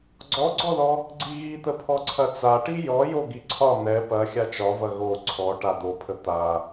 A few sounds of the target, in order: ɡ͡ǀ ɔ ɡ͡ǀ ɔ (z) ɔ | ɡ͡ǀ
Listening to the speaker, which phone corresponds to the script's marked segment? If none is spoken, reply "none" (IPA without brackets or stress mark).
ð